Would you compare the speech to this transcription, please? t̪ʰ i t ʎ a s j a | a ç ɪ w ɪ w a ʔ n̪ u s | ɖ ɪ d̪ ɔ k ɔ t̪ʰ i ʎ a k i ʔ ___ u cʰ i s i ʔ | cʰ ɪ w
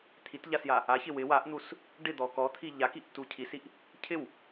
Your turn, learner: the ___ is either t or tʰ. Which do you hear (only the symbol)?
t